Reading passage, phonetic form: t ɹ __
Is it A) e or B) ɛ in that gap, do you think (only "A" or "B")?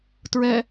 B